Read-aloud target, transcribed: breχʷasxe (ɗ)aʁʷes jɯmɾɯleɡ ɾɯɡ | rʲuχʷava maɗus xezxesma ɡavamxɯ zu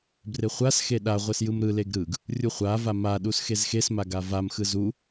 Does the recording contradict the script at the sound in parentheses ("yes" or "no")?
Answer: no